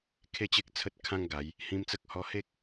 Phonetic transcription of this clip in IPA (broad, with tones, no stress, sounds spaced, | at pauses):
kʰ e˦ t͡ɕ e˦ k̚ t͡sʰ ə˦ t̚ kʰ ã˦ ŋ ɡ a˨˦ j | h ĩ˧ m t͡s ə˦ k̚ h ɔ˧ h e˦ k̚